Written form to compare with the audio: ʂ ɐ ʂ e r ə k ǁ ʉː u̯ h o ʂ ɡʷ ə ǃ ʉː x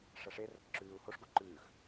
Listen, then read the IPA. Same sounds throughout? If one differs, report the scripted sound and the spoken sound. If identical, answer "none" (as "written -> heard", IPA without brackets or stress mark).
none